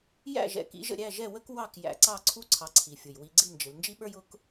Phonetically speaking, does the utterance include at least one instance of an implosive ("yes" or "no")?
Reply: yes